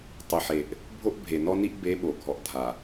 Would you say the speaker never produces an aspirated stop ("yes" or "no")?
yes